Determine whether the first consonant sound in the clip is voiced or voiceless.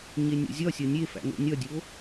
voiced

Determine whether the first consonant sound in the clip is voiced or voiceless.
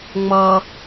voiced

